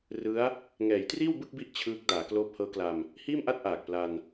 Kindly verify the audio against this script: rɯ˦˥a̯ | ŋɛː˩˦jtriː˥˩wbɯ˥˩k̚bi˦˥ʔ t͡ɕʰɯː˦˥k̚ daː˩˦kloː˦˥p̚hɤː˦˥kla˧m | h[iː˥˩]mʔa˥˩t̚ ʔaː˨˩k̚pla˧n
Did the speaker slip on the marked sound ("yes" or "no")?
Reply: no